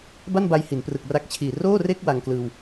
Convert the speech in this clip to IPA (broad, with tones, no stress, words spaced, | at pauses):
ba˥˩nba˧j hi˩˦nprɯ˨˩k̚ ra˦˥k̚t͡ɕʰiː˨˩ roː˥˩re˥˩k̚ wa˧ŋklɯː˧w